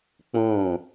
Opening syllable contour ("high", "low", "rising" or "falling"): falling